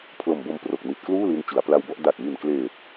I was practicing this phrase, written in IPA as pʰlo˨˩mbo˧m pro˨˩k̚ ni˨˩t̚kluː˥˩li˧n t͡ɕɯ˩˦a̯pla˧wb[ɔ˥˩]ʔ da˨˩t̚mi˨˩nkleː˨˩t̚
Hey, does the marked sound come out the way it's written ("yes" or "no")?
yes